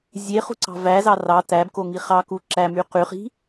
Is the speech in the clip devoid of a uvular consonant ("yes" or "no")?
no